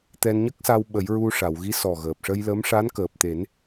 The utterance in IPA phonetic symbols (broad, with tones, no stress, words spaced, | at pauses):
t̪ɛ˧nɲə˦˥k̚sa˧w ɓə˨˩˦jɹu˧ʂa˨˩˨wɣi˧˥ sɔ˨˩ɣəː˨˩p̚ʂə˧jlə˧˥m ʂa˧˥nkəː˨˩p̚t̪e˨˩˦n